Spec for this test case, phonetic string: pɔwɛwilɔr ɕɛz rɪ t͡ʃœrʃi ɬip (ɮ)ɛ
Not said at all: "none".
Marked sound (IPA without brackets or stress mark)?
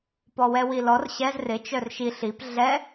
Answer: ɮ